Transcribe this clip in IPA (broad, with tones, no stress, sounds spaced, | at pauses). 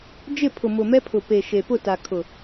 d͡ʒ ɪ˦˨ pʰ ʊ˨ m ʊ˨ m ɛ˦ pʰ ʊ˨ p e˨ ʃ e˨ p ʊ˦˨ t a˨ kʰ ʊ˨